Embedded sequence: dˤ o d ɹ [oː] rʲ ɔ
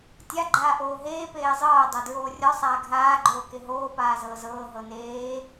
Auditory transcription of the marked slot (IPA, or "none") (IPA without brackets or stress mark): oː